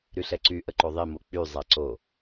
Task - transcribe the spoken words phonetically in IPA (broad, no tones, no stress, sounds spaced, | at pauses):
ɾ y ɬ ɛ ǀ y ʔ ə ǃ o ðˤ i m o k͡p y zˤ a ǀ o